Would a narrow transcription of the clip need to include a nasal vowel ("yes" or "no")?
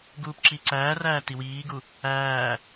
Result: no